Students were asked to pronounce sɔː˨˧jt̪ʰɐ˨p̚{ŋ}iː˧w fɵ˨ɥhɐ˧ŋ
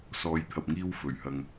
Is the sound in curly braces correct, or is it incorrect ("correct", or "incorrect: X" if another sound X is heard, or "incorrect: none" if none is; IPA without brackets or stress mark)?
correct